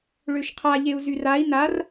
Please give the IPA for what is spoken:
ɭøʃqʰa ʎeu̯zyrai̯ nar

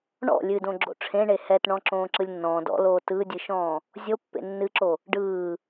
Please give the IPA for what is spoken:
ɳɔ̰ lʲɨdõɡ͡ǁo̰ ʈ͡ʂʰẽɳe hɛtɳɔ̃ ǁõːǁɯlʲnːɔ̃ː dɔ̰ loːtɯdʲɨʃɔ̃ː | zʲopːḛ nːɨǁo | ɖɯː

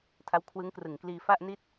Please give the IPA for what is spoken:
tʰa˦˥wkʰwɯ˦˥ŋkrɯ˨˩ŋkliː˧ fa˥˩ʔni˥˩t̚

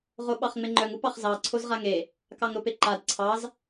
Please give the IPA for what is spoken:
ʁoɓɑχŋ͡meŋ͡ǃœŋ upɑχzɑ ǀʰozʁaŋe | kɑŋɾopeǃad ǀʰɑz

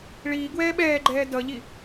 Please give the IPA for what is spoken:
ɭiːɡwɛː ɓɛːɡ͡ǃɛː dʌʎi

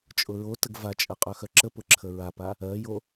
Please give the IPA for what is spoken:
t͡ʃʼʊɹotəɡ vat͡ʃʼə qʼœxœǁəpʊ ǁʰəɹapa | ɜjo

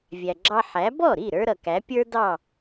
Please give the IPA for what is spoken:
vʲæ˩ɡ͡ǁɑ˧ ħæ˩˥ bɔ˥˩ɾi˥˩ ɾə˞˥ɾʌ˩kæ˩˥ pʲə˞˥dɑ˥˩

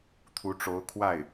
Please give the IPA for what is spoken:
t̪ʰu˧˥ʈ͡ʂo˧˥ʊ̯ kʰwa˥˩ɪ̯

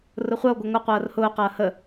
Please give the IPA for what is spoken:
rʊχʷɐo̯ ɡʷɐŋʷɐ qʷɐːrhʊː qɐːhə

